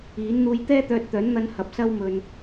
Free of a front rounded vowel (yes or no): no